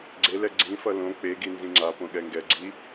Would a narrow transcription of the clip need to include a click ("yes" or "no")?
yes